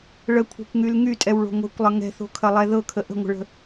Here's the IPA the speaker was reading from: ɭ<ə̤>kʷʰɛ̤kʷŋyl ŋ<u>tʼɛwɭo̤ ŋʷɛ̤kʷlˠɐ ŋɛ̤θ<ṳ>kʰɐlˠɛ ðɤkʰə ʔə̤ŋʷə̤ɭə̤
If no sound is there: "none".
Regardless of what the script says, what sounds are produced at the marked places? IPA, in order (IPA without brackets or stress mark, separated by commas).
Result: ə, y, o̤